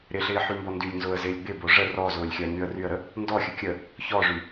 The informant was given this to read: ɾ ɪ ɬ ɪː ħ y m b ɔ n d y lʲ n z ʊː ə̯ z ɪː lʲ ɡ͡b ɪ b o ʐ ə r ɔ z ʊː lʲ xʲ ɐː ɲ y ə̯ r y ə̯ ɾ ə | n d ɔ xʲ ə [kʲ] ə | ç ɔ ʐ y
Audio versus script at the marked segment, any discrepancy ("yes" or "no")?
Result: no